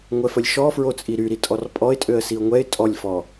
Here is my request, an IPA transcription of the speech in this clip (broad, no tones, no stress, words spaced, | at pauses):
ŋʷɛfəlʲʃɔ fɹot͡sʼiɾyɾi tʼɔrpʼɔɪ̯tʼøə̯ siʊ̯ŋʷɛɪ̯ tʼɔlʲfɔ